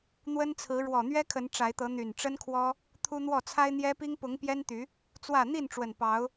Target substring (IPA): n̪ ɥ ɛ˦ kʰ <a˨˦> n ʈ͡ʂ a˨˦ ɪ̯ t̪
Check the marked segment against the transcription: incorrect: ə˨˦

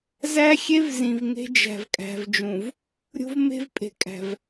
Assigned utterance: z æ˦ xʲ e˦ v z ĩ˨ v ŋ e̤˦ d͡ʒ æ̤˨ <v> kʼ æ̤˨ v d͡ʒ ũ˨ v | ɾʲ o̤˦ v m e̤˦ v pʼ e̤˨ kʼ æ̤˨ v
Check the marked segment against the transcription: correct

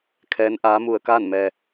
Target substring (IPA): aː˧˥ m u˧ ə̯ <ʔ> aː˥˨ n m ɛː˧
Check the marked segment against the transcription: incorrect: k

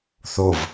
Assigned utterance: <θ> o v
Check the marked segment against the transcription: correct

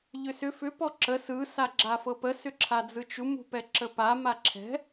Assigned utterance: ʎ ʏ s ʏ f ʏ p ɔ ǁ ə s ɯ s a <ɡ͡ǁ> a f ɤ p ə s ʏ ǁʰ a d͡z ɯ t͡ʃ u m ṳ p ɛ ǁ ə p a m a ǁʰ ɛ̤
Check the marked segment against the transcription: correct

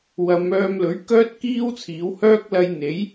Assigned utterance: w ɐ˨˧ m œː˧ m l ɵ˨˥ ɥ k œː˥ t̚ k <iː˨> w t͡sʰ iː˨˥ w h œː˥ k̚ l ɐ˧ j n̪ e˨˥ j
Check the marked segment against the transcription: incorrect: iː˥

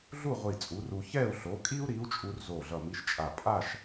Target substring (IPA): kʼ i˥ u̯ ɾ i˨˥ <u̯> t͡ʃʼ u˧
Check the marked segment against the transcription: correct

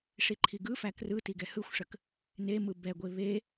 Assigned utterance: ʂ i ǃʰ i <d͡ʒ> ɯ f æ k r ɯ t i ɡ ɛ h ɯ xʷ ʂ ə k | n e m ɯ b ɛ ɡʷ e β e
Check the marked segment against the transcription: incorrect: ɡ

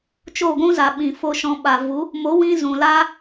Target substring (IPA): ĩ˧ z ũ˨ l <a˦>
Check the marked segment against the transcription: correct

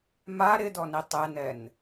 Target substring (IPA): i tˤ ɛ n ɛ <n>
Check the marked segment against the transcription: correct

